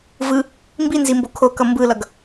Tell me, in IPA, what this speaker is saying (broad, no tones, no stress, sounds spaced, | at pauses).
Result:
v ɯ | m b i n z i m b o kʰ o k ʌ m b ɯ l ʌ ɡ